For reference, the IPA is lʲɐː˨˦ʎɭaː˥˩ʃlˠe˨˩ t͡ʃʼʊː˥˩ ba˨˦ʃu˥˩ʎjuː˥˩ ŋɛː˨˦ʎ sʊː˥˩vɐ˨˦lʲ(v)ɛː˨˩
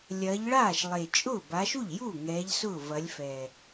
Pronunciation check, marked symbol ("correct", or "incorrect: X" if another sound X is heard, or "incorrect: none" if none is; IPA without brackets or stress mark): incorrect: f